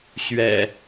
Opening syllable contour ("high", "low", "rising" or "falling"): low